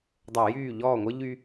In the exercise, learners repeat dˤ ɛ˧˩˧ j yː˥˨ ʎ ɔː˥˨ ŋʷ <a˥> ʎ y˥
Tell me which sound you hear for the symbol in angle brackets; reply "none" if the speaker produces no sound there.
ə˥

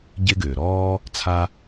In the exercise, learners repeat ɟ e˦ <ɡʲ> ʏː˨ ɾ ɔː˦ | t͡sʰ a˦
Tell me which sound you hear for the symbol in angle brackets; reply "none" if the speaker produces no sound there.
ɡ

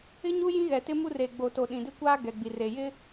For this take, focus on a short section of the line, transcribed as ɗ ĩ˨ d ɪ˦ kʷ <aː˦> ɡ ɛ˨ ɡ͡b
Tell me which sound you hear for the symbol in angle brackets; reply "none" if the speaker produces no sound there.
aː˦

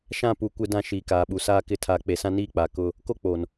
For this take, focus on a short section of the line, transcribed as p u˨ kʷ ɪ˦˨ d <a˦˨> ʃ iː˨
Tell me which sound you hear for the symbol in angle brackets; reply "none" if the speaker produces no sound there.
ã˦˨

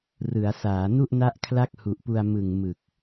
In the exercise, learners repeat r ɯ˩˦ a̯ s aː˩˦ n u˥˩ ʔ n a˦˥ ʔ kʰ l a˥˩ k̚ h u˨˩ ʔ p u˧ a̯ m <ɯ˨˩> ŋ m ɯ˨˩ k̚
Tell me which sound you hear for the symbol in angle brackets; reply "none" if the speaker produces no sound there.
ɯ˨˩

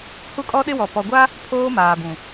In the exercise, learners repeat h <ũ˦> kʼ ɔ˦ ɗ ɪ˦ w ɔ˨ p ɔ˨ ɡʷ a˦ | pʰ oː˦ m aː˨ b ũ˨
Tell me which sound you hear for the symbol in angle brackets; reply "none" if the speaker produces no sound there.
u˦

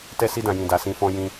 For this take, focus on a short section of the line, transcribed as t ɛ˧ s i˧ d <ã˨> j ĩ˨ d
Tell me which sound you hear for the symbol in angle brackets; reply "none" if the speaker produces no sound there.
ã˨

